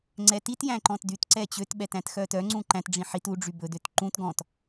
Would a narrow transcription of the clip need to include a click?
yes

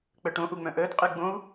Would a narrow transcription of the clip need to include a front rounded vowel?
yes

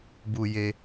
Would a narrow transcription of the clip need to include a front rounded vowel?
no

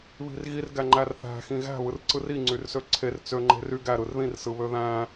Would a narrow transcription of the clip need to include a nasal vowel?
yes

